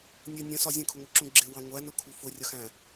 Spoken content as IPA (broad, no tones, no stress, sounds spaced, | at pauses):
nʲ ə nʲ ə̃ s ɒ zʲ ə̃ kʰ ʊ ŋʷ ɪ ǁ ũ ɡ͡ǁ ɪ w ɑ̃ ŋʷ æ n ʊ kʰ u f ʊ rʲ ʌ x æ̃